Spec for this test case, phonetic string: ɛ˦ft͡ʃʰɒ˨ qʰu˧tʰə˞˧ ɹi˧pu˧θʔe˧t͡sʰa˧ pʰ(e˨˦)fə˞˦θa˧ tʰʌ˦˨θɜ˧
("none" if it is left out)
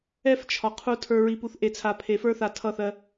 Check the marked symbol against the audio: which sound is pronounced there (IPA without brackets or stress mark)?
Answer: e˨˦